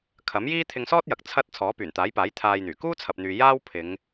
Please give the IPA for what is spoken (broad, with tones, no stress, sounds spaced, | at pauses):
kʰ ɐ˨˥ m j iː˥ t̪ʰ ɪ˧ ŋ s ɔː˥ t̚ j ɐ˨ k̚ t͡sʰ ɐ˥ t̚ t͡sʰ ɔː˨˥ p yː˨˩ n t̪ aː˨˥ j p aː˨˥ j t̪ʰ aː˧ j n̪ yː˨˩ k uː˥ t͡sʰ ɐ˨ p̚ n̪ yː˨ j aː˥ w pʰ ɪ˨˧ ŋ